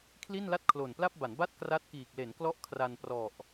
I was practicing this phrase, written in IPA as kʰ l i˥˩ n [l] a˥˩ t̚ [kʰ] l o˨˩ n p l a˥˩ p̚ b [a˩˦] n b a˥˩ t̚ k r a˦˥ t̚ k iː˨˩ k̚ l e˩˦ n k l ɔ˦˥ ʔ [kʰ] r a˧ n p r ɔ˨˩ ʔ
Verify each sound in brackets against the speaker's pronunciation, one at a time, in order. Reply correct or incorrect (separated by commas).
correct, correct, correct, correct